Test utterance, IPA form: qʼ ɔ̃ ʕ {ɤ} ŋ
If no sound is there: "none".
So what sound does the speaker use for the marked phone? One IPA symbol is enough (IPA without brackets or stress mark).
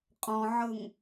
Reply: ɤ